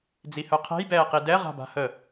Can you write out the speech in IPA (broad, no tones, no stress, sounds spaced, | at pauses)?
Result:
d͡z i h œ qʰ ɛ̤ j b ɛː q i d ɛ ʁ a̤ b a̤ h ə